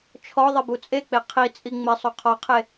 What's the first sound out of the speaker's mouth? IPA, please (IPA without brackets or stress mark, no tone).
t͡ʃʰ